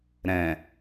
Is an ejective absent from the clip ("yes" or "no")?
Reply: yes